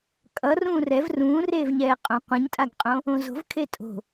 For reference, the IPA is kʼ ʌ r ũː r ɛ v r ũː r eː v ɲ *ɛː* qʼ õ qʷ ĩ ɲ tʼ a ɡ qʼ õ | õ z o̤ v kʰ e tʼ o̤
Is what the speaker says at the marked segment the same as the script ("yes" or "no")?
yes